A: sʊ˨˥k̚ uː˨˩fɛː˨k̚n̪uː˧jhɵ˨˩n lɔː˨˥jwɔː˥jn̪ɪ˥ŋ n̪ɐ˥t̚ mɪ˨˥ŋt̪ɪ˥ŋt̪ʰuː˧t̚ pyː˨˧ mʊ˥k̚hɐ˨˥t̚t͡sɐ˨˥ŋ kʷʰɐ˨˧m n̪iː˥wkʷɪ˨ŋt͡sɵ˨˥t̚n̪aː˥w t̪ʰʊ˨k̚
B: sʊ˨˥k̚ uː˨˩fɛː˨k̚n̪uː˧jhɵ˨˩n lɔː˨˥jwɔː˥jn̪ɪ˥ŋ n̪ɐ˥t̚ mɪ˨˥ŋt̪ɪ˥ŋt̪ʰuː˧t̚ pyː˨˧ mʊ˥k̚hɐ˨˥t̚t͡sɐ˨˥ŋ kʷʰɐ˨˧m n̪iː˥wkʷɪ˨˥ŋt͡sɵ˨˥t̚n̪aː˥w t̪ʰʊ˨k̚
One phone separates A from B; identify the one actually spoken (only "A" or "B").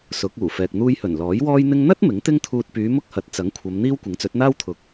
B